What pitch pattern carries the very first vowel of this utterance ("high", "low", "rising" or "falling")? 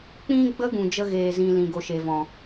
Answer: high